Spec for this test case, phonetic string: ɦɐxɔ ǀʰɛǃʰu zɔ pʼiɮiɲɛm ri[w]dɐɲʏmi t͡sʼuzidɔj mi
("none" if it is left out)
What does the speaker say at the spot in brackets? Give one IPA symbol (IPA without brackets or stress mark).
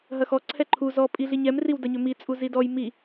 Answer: w